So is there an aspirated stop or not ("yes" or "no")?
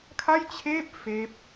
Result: yes